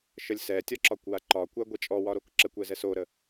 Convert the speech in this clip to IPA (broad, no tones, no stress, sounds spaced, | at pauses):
ʃ ə lʲ s ɛ tʲ ɒ ǁ ɒ kʷ w a ǃ ɒ kʷ a ɡʷ ɛ t͡ʃʼ ɔ w ɒ ɾ o k ǁ ə kʷ ɛ z ɛ s o ɾ ə